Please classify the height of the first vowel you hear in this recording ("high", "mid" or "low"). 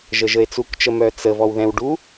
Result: mid